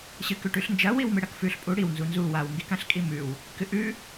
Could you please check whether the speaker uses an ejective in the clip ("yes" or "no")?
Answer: yes